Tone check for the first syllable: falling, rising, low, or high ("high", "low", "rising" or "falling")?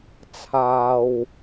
low